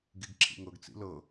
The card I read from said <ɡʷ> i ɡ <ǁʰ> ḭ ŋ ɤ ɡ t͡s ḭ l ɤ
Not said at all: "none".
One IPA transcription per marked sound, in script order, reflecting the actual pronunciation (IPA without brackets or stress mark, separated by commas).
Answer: ɡ, ǁʰ